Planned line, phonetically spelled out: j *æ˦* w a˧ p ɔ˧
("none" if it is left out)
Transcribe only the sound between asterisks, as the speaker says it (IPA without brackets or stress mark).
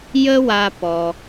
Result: ə˦